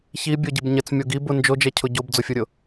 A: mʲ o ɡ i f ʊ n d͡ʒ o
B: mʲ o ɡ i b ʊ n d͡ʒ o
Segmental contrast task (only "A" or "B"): B